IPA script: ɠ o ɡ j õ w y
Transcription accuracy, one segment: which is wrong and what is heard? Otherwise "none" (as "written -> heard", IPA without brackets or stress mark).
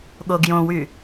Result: none